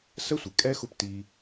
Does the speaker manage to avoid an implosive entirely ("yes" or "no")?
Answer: yes